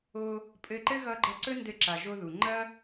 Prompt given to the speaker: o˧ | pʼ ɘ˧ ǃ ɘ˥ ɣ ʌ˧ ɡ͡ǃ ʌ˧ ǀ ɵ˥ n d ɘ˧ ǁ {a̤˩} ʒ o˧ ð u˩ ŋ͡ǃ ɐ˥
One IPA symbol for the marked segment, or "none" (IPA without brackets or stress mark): a˩